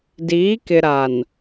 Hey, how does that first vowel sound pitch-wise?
rising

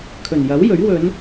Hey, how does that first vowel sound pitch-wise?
low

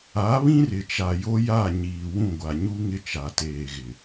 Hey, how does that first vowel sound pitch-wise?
rising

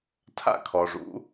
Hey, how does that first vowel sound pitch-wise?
falling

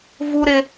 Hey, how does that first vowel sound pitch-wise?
high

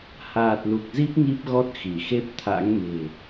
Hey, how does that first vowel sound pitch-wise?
low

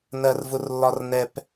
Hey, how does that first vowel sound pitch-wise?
high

